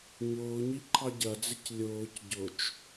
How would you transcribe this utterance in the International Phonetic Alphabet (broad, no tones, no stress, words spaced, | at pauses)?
ɲʊːɲiǃʰɑ ɟɐd͡zɪc lʲʊːc ɟʊt͡ʃ